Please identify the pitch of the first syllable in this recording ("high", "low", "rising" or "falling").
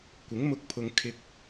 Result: rising